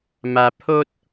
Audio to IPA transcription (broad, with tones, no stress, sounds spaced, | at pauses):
m a˧ pʰ o˦ t̚